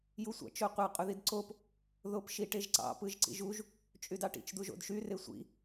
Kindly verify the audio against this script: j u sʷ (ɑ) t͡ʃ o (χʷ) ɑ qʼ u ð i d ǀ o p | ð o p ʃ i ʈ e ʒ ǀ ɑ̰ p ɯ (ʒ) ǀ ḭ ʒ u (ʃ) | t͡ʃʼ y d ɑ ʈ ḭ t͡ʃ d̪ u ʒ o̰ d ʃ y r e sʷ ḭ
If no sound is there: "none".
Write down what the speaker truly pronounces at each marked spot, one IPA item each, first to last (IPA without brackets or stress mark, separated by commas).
ɑ̰, qʷ, ʒ, ʒ